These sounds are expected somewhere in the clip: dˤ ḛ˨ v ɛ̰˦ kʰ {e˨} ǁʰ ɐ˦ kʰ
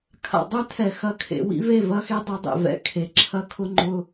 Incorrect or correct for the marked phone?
correct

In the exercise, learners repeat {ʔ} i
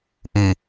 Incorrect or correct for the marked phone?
correct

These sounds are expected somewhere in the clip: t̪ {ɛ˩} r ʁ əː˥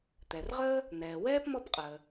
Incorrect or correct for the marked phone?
correct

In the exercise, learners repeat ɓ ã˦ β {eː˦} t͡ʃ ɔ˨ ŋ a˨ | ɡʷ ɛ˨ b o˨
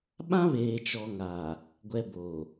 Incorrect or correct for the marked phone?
incorrect: eː˨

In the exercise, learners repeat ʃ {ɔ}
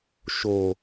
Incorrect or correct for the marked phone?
incorrect: o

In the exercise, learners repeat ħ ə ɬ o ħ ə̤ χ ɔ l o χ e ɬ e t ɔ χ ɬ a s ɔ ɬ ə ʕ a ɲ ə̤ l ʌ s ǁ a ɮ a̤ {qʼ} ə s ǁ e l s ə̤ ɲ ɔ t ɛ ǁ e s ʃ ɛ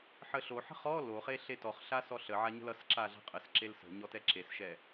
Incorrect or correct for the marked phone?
correct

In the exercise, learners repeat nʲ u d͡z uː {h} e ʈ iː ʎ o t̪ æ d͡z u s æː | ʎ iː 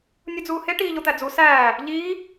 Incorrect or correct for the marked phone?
correct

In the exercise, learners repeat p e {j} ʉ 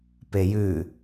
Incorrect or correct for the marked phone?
correct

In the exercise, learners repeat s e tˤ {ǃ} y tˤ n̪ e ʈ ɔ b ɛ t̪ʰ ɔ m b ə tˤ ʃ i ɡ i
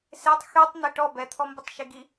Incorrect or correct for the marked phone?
incorrect: x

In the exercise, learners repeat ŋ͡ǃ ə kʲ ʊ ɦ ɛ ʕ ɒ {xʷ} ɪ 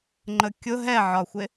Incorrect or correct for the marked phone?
correct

